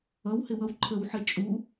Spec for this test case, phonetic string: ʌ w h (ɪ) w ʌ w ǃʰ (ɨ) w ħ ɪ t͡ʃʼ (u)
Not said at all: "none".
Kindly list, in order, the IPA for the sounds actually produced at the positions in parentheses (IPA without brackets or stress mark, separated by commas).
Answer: ɪ, ə, u